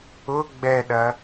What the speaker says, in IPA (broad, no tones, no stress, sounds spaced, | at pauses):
ʊ ɡ͡b ɛ ɗ ɐ